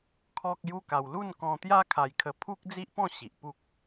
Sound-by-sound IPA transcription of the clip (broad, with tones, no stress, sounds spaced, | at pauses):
kʰ ɔ˦ k̚ j u˦ k a˧ w l u˥˧ n k ɔ̃˧ t̪ j a˦ kʰ a˧ j kʰ ə˧ pʰ u˦ k̚ d͡z i˦ ʔ p ɔ̃˥˧ ɕ i˨ ʔ p u˦ k̚